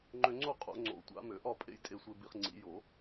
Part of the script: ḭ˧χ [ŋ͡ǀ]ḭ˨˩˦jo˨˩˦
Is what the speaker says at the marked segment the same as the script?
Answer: yes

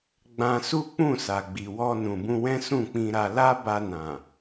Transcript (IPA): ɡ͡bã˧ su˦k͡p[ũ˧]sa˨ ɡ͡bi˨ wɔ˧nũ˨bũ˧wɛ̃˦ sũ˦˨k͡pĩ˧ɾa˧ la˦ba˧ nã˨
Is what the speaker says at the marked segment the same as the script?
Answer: no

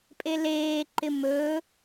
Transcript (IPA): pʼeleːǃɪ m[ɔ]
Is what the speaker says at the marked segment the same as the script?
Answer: no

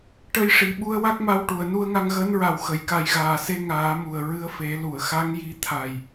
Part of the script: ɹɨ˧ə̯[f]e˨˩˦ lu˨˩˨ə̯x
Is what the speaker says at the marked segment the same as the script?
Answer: yes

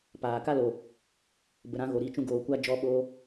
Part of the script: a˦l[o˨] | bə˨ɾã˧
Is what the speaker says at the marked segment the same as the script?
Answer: yes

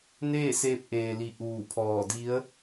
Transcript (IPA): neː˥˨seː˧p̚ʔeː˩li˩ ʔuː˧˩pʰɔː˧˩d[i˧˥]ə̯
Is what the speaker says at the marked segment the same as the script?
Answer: yes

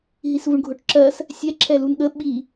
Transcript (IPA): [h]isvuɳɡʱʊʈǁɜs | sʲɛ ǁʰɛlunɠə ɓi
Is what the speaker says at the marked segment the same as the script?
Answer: no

